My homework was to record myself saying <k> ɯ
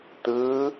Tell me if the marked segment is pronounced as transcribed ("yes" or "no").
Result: no